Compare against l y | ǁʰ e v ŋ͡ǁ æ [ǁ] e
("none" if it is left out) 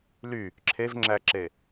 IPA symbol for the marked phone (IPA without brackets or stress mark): ǁ